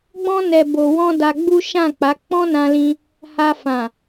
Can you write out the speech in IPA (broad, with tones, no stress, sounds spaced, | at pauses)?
ɡ͡b ɔ̃˧ n ɛ˨ b o˨ w ɔ̃˧ d a˧ ɡ͡b u˦ ʃ ã˦˨ k͡p a˨˦ k͡p ɔ̃˦ n ã˧ l ĩ˧ | h a˧ f ã˨